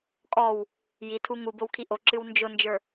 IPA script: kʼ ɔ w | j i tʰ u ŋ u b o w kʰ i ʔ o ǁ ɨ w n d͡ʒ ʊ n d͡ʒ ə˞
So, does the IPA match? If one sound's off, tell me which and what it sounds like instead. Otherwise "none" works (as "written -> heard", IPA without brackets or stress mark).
none